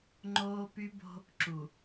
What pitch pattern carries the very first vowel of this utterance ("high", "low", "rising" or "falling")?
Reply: high